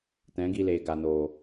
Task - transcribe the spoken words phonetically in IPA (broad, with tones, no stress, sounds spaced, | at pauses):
t ɛ̃˨˦ ɡ i˧ l eː˨ ɡ a˨ n oː˨